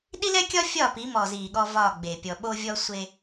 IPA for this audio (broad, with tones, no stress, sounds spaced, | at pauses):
ɗ i˦ l ɛ˦ kʲ ɒ˦ fʲ ɒː˦˨ p i˨˦ m ɔ˨ z iː˨ ɠ ɔ˦ v ɒː˦˨ ɡ͡b e˨ pʲ ɔ˨ ɓ o˦ vʲ ɔ˦ sʷ e˦